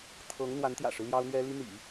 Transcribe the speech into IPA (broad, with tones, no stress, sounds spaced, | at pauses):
t̪ʰ ɤ˧˥ ŋ n̪ w a˧˥ n t̪ j ä̰˨˩ ʂ ɻ̩˦ l j ɑ˥ ʊ̯ n̪ ɥ ɛ˥ l i˥ n̪ ḭ˨˩˦